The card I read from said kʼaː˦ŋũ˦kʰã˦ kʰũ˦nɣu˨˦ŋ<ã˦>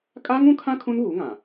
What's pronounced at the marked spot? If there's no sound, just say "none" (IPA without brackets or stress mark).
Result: ã˨